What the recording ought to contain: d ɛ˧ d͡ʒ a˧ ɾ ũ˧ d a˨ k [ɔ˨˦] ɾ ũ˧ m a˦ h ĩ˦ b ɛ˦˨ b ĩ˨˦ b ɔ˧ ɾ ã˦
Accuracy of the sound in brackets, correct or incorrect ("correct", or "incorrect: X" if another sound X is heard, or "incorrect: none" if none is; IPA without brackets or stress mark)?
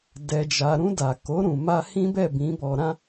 incorrect: o˨˦